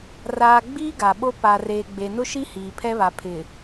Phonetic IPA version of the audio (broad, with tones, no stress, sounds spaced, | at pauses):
r aː˨ ɡ͡b iː˦ ɡ a˨ ɓ o˦ p a˨ r eː˨ ɡ͡b e˨ n ʊ˦ ʃ i˦ h iː˨ pʰ ɛ˦ β a˨ pʰ ɪ˨